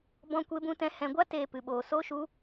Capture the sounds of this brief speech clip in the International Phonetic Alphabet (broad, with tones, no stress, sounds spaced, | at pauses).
b ɔ̃˦ kʷ e˦ b ũ˦ t ɛ̃˦ h ɛ̃˧ ɡʷ a˦ t eː˧ p ɨ˧ ɓ oː˧ s oː˦ ʃ u˦